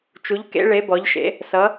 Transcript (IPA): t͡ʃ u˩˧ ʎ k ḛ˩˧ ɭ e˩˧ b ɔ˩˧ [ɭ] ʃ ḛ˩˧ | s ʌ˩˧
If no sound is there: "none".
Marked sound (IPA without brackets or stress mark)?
ʎ